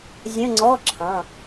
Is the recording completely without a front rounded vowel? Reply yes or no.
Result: yes